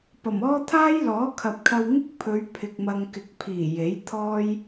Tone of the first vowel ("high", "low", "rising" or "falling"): low